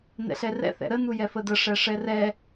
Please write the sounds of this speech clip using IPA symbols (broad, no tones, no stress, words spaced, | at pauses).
nɛ̰ɬɛrɛ̰ θɛ̰ɾə nujɛfədə ʂɛʂɛrɛ